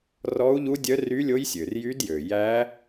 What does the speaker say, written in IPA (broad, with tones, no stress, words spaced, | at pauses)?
rɔ˦˥u̯ʎu˦˥dʲœ˦˥ ry˦˥lʲo˦˥jsʲø˩r jy˦˥djø˩ jæ˦˥